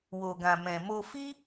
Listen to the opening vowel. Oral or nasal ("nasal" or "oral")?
oral